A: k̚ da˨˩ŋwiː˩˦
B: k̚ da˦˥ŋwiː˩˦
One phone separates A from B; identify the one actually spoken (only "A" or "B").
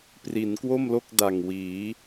A